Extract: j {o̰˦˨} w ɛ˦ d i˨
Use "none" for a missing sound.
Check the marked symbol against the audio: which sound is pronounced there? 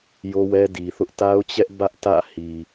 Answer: o˦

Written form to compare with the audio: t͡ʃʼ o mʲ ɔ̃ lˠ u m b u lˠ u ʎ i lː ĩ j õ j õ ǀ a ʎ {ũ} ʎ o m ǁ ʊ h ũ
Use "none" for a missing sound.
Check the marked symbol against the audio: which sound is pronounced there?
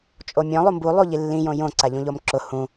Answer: ũ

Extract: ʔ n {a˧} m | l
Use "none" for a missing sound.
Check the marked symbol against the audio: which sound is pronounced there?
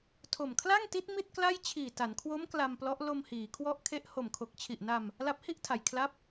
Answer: a˧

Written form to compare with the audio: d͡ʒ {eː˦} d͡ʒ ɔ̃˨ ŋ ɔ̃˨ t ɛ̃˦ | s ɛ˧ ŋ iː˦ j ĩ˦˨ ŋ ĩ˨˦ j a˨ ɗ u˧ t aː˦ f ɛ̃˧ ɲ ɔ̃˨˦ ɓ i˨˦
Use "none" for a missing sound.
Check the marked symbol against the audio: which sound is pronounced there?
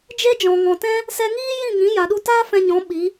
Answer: e˦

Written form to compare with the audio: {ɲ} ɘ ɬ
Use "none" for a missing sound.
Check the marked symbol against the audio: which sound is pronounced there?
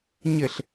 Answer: ɲ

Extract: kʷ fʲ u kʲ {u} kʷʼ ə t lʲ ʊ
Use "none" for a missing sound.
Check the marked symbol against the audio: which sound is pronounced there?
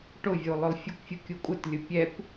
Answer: u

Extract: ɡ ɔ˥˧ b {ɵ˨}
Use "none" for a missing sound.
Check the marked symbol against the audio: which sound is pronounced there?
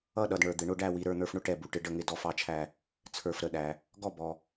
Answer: ɔ˨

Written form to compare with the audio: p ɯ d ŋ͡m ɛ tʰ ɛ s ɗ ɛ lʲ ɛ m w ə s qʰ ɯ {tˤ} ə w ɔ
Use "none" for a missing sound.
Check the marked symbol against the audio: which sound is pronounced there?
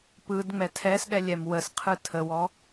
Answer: tʰ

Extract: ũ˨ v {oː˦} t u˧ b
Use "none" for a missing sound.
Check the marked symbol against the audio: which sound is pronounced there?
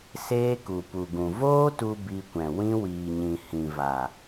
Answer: oː˦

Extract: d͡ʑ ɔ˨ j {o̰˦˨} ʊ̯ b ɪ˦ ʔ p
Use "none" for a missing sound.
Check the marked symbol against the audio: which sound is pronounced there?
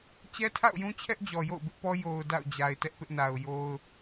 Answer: o̰˦˨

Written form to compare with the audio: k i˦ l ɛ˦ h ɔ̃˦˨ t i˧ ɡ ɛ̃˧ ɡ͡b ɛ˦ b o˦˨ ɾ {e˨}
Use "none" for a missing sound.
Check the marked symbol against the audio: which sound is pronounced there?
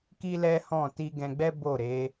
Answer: e˨˦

